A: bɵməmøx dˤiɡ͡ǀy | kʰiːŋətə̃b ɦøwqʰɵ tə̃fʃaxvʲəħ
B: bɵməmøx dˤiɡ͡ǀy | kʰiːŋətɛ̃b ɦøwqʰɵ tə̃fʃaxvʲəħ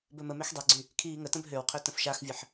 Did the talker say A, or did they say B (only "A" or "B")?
A